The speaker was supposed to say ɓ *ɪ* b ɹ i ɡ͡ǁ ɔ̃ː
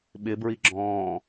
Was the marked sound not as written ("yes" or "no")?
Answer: no